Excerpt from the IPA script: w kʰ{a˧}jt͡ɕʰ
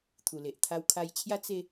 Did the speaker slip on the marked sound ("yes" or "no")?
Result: no